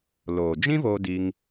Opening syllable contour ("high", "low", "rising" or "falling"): low